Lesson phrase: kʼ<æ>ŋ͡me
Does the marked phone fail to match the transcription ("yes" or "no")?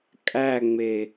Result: no